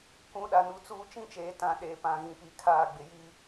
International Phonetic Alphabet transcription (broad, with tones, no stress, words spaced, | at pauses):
kʷũ˨˦ ɗa˨nu˨t͡suː˦ t͡ʃĩ˦t͡ʃeː˨tã˨ ɗeː˨pã˨ɣĩ˨pi˨ kʰaː˦˨ɡ͡bɪ˨ ji˦